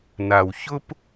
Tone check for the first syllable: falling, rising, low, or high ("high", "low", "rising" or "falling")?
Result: low